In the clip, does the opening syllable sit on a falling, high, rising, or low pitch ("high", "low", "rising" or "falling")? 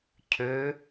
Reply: rising